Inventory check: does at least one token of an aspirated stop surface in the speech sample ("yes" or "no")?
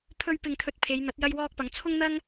yes